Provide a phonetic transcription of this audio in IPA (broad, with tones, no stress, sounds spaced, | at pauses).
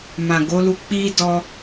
m ã˨ ɡ o˨˦ l u˧ k͡p i˦ d ɔ˦